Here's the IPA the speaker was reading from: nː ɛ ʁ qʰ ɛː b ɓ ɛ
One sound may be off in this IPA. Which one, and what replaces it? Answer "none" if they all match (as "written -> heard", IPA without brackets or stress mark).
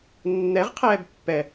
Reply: ɓ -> pː